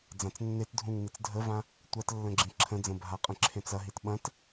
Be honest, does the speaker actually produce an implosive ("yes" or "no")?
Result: yes